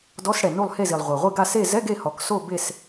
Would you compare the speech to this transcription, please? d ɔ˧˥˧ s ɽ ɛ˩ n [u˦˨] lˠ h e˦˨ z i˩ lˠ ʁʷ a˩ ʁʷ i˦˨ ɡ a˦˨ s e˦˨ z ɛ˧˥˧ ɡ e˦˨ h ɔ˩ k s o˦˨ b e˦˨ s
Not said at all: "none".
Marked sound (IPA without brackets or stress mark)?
u˦˨